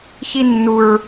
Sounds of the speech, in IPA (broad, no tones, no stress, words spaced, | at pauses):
çinːuɹ